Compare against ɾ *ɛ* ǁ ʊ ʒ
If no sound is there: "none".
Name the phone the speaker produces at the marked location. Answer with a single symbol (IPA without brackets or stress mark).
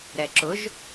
ɛ